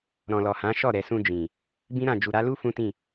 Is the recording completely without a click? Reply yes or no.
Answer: yes